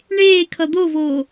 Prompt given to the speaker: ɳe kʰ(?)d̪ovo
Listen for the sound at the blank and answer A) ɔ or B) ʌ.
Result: B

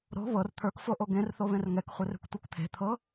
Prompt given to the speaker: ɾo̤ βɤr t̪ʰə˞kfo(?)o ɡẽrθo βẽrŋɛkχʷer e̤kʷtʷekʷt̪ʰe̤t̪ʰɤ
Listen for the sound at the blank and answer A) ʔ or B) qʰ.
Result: A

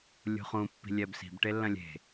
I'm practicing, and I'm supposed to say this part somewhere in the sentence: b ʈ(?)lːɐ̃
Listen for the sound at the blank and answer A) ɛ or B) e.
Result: B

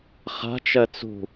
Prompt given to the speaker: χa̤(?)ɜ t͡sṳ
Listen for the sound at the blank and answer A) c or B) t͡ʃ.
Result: B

